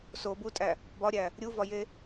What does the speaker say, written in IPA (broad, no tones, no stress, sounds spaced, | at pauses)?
s o b u tʼ æ | b ɒ ɾʲ æ | ɾʲ u v ɒ j e